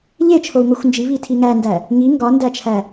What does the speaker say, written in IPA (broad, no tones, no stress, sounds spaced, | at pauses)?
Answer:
ʎ e t͡ʃʰ o u̯ ŋ o xʷ n d͡ʒ i β i tʰ i ŋ æ n d æ | ŋ i ŋ ɡ ɒ n d æ t͡ʃʰ æ